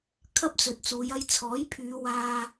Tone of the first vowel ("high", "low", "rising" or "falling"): high